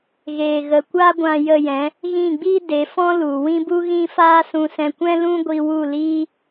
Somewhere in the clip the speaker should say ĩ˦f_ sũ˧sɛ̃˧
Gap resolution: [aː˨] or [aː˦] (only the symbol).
aː˦